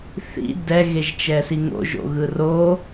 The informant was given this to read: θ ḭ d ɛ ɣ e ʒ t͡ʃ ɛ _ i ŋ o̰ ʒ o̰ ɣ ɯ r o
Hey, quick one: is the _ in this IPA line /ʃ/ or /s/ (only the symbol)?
s